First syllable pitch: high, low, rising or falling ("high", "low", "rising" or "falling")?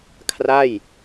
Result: falling